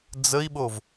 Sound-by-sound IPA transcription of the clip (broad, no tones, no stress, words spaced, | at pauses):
d͡zəi̯ɓov